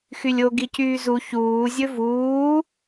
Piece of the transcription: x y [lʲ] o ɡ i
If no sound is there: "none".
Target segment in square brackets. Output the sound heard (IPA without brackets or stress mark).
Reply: lʲ